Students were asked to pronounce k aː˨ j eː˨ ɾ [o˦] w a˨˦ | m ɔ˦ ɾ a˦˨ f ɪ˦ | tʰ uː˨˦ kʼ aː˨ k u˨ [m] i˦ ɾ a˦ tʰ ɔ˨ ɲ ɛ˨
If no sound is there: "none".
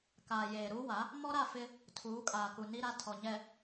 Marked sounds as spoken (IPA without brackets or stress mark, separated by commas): u˦, n